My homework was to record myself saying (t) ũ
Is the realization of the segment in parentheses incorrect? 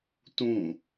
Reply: no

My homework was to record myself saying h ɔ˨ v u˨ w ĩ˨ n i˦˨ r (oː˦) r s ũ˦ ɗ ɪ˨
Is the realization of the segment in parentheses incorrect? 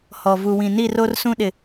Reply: yes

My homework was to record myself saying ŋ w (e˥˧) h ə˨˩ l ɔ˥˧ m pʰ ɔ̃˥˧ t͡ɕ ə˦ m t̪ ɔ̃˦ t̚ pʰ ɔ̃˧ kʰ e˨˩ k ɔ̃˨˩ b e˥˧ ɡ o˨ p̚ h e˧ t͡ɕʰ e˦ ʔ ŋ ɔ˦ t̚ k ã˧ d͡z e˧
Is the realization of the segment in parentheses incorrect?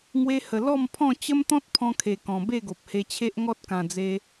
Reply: yes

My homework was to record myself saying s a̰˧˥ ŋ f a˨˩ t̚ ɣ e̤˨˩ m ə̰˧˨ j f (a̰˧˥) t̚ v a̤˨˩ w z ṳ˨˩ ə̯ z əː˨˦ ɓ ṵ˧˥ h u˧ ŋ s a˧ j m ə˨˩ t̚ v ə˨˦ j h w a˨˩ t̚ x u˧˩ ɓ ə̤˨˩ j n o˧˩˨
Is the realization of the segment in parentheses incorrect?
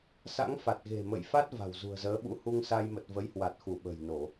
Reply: yes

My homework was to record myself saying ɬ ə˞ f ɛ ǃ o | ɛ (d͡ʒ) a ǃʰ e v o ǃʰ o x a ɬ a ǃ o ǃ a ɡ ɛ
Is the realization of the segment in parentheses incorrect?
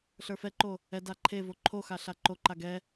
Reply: yes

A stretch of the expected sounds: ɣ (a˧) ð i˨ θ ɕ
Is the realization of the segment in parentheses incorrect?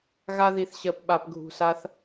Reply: no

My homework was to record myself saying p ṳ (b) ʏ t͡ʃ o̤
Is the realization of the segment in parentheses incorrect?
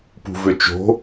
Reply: yes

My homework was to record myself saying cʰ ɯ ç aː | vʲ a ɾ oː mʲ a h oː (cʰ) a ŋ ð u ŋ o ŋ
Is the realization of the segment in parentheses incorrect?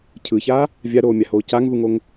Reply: yes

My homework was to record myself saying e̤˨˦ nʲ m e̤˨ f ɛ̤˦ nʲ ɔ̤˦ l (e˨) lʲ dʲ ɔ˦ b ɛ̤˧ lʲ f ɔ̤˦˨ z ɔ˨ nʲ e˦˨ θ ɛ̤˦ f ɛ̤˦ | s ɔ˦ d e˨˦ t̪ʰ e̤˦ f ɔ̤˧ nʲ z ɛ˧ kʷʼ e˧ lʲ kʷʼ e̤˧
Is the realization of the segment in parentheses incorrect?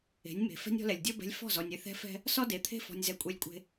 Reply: yes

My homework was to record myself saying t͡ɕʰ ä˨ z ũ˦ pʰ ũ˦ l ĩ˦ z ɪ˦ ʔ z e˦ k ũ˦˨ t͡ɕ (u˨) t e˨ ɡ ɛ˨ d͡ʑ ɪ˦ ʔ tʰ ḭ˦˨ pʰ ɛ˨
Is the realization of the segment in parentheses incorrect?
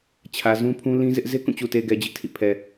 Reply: no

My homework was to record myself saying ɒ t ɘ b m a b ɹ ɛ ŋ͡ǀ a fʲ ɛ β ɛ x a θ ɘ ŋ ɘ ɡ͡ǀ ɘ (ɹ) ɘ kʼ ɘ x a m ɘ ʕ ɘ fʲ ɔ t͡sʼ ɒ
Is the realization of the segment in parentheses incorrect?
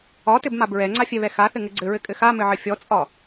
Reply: no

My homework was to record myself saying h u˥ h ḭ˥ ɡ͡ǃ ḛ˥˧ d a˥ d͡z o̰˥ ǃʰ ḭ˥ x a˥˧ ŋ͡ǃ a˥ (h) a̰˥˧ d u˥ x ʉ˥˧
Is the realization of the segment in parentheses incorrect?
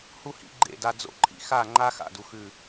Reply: yes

